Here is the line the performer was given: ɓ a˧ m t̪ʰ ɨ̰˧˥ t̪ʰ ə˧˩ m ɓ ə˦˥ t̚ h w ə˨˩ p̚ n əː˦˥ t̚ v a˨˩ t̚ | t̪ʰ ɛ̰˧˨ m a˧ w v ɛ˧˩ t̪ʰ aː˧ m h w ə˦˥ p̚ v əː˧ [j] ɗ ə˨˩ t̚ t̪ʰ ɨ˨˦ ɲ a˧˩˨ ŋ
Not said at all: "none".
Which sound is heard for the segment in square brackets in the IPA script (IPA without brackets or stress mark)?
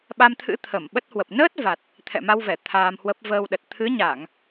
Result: w